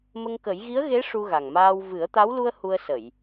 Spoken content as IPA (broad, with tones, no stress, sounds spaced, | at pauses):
m ə˧ ŋ k ə˨˩˦ j ɣ i˧˥ ə̯ ɣ e˧˥ ʂ u˧ ɣ a˨˩ ŋ m aː˧ w v ɨ˨˩˦ ə̯ t̪ a˧˥ w l u˧ ə̯ h u˧ ə̯ s ə˨˩˨ j